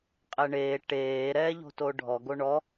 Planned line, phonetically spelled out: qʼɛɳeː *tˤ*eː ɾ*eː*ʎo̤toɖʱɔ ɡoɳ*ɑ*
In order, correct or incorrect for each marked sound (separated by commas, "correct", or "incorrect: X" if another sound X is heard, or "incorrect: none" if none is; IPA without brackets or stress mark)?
incorrect: ʈ, incorrect: ɛː, incorrect: ɔ